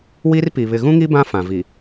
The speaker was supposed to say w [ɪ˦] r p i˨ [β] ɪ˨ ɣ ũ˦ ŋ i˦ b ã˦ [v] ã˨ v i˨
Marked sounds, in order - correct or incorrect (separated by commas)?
incorrect, correct, incorrect